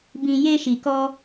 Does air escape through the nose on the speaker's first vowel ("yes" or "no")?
yes